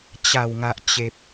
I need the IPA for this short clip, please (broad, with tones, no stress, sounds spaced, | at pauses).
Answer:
t͡ɕ a˨˩ w ŋ a˨ ʔ t͡ɕ e˨ p̚